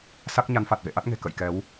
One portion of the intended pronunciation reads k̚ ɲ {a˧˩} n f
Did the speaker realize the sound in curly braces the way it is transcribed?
no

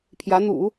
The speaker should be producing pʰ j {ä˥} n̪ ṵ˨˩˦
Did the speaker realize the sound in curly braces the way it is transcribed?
no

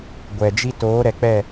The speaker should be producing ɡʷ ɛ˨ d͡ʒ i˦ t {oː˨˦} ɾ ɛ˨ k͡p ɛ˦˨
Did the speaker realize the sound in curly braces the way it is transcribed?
yes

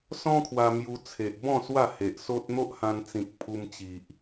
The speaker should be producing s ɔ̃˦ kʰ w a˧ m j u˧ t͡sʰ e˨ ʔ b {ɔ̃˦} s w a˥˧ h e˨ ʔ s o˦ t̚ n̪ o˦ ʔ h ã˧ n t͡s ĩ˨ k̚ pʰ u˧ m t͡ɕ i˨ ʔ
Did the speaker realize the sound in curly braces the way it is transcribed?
no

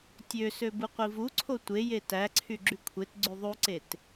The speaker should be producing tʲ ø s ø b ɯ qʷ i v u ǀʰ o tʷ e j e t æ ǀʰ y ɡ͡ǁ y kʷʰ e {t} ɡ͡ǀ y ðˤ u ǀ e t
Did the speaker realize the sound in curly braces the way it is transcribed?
yes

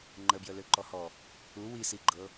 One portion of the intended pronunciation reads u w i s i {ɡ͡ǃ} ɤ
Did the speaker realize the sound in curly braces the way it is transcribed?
yes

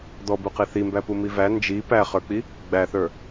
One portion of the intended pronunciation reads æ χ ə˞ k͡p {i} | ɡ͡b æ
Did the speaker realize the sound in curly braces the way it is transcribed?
yes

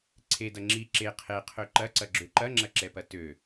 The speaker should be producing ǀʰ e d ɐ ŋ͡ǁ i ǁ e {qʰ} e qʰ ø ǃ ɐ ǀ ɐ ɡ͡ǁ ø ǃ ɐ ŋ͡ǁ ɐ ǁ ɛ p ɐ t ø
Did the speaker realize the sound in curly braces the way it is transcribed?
yes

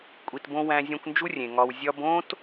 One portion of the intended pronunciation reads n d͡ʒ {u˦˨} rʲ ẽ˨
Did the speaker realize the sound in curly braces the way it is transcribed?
no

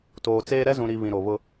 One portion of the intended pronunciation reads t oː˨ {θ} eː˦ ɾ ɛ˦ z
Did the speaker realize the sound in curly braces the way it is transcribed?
no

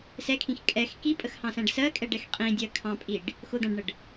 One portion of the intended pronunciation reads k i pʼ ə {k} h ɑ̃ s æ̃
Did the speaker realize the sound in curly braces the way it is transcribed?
no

